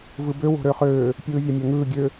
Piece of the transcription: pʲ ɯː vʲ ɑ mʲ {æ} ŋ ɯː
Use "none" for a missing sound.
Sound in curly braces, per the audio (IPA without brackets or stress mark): æ